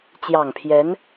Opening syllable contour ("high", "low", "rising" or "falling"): low